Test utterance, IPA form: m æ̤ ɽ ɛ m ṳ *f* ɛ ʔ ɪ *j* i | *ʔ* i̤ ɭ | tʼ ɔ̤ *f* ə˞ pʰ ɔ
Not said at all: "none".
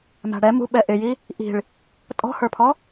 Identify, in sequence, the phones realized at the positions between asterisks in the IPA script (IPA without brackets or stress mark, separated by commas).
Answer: ɓ, j, ʔ, h